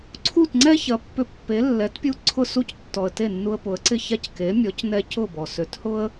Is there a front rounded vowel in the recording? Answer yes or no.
yes